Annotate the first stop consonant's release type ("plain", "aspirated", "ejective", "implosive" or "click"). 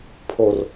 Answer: aspirated